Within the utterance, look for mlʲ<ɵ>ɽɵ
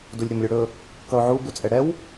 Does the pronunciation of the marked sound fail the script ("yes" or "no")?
no